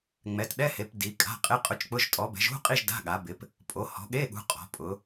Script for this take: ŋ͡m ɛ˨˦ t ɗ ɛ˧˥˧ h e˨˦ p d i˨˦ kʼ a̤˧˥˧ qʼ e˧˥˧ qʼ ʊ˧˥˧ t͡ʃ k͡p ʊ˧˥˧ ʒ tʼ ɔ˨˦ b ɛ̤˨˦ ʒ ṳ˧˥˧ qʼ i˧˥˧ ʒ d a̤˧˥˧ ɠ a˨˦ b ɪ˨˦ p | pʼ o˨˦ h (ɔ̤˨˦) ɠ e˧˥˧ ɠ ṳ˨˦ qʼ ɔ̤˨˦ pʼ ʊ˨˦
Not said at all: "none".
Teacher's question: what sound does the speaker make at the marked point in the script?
ɔ̤˨˦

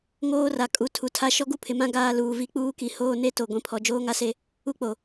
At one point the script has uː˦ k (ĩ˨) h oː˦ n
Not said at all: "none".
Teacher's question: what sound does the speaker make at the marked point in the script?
i˨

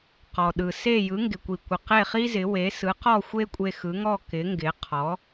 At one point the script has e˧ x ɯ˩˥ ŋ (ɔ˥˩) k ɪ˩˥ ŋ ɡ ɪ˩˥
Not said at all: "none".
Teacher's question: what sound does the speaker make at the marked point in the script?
ɔ˥˩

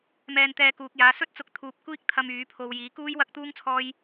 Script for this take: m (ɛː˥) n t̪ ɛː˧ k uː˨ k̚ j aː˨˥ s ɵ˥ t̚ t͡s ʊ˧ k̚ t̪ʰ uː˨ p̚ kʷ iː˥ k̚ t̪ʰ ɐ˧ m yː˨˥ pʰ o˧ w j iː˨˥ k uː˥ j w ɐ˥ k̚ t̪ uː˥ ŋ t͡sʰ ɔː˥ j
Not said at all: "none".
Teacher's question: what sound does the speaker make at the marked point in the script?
ɛː˧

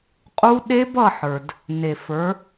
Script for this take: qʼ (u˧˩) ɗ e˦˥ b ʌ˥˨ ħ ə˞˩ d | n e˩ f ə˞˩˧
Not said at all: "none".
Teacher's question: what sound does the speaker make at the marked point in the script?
u˦˥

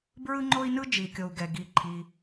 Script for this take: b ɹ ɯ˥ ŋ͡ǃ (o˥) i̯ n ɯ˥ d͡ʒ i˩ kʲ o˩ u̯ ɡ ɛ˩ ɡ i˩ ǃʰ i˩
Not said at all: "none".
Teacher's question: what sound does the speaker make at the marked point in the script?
o˥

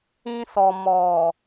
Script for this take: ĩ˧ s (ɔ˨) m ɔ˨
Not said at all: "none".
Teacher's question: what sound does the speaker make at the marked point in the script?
ɔ˨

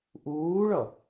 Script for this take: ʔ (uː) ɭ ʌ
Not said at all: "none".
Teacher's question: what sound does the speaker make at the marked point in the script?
uː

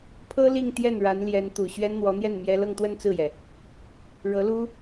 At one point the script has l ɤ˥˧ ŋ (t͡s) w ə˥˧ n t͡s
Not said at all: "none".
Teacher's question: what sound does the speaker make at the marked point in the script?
t̪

